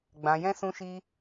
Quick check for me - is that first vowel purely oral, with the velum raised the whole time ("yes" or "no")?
no